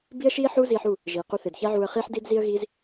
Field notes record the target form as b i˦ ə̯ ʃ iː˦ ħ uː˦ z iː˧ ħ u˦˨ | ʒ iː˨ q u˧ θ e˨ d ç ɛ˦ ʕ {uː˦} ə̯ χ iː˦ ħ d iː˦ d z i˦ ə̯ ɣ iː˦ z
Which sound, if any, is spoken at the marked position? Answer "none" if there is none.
uː˧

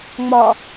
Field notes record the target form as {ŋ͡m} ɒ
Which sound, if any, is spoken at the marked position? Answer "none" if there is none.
ŋ͡m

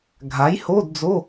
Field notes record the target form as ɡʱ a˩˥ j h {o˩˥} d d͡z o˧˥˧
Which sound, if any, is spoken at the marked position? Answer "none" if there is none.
o˧˥˧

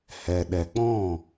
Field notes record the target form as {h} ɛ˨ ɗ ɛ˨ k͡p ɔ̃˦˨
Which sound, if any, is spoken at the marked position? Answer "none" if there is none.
h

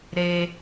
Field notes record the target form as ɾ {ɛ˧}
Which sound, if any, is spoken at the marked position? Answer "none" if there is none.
e˧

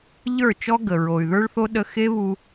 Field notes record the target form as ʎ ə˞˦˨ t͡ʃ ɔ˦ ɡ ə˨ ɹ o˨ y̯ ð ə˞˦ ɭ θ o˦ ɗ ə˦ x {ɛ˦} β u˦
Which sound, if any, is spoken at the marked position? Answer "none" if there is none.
e˦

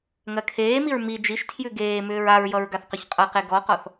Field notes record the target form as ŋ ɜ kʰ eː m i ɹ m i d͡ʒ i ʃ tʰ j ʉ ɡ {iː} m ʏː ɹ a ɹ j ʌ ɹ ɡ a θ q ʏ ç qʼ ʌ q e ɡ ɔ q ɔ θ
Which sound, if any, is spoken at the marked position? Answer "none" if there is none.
eː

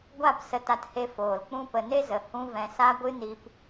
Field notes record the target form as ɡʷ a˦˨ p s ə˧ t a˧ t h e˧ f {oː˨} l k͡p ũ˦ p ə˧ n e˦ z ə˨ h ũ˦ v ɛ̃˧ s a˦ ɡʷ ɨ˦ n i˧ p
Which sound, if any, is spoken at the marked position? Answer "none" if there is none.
oː˨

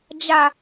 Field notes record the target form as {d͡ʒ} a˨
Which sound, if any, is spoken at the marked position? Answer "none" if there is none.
d͡ʒ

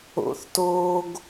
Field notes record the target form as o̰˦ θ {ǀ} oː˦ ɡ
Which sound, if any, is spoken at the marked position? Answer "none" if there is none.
t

